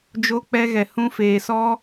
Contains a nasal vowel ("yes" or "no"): yes